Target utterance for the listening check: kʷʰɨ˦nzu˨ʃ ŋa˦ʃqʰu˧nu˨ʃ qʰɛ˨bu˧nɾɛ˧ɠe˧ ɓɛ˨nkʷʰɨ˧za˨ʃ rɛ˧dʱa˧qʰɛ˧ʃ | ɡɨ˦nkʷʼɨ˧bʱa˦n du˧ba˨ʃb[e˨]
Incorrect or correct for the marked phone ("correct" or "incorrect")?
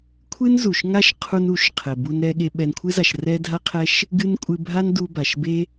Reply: incorrect